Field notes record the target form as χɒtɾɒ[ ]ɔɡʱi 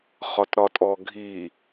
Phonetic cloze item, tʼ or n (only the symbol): tʼ